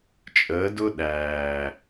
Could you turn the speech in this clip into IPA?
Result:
t͡ʃʼ əː˨˦ d ʊ˦ ɗ æː˨

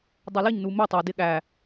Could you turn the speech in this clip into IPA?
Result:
dˤ ə˞ l ɪ ɲ n u m ɪ tˤ ʌ d ɪ ɠ æ

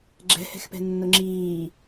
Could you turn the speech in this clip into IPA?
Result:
ɡ͡ǁ ɛ̤ h ɛ̤ x p ɛ̤ nː ʊ ŋ͡ǁ iː

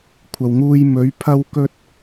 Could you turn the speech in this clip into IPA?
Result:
kʷʰ ɐ˨ w ŋ uː˧ j m ɵ˨˥ ɥ pʰ ɐ˥ w k ɵ˥ t̚

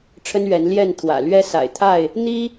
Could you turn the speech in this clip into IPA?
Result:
ʈ͡ʂʰ ə˦ n ɥ ɛ˨˦ n l j ɛ˥˨ n t̪ʰ w ä̰˨˩ l ɥ ɛ˦ s a̰˨˩ ɪ̯ t̪ʰ a˥˨ ɪ̯ | n̪ i˦

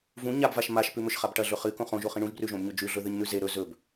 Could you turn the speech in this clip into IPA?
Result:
v ũ ɲ a b v a ʃ m a ʃ p ʉ m ɵ ʃ χ a b ʈ ɐ ɮ ɵ χ ɨ k õ χ õ ʒ o χ ĩ ɳ ũ ʒ b r ʉ ʒ õ b ɲ ɵ d͡ʒ ʉ ɮ ɵ ð ɨ ɲ n̪ ʉ z e ɾ ɵ z ɵ b

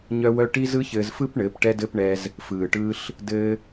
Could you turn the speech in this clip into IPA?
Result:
ɲ œ˦ w œ˦ ʈ i˦ z ɯ˦ ç ɘː˧ z f ɯ˦ p ɳ ɘː˨˦ p ʈ ɛ˦ d ɘ˦ p ɳ ɛ˧ z | f ɯː˨ ʈ ɯː˦ ɬ | d ɘː˦

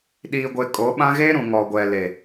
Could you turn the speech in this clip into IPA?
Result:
ɗ iː˨ ɡʷ e˨ kʼ o˨˦ ɓ ã˦ ɣ e˦ ɾ ũ˨ ŋ ɔ˨ ɡʷ ɛ˨ l e˨

